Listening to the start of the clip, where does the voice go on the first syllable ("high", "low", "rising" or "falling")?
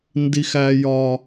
high